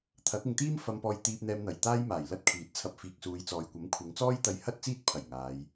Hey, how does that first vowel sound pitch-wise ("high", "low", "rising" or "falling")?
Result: rising